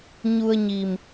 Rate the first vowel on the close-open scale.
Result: close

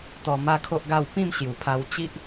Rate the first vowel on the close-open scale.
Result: mid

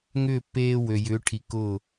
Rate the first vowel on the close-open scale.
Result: close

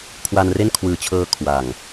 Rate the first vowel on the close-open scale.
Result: open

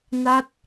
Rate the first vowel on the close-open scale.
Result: open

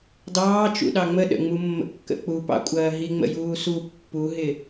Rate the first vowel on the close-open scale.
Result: open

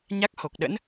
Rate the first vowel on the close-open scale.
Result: open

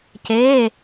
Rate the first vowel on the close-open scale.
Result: mid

